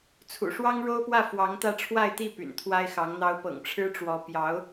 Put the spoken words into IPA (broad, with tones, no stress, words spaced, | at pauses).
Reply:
t͡sʰṵ˨˩ʂwɑ˥ŋ ɻo˥ʊ̯pwä˥˩ fwɑ˧˥ŋt̪ä˥˧ ʈ͡ʂʰwa˥˧ɪ̯t̪i˥˩ py̰˨˩nt̪ʰwa˥ɪ̯xɑ˧˥ŋn̪ɑ˥ʊ̯ pɤ̰˨˩ŋʈ͡ʂʰɻ̩˥ʈ͡ʂwɔ˧˥ pjɑ˧˥ʊ̯